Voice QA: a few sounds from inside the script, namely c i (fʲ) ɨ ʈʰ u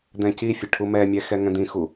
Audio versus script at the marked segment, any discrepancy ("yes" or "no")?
no